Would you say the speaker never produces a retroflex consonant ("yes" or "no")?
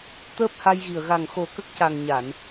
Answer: yes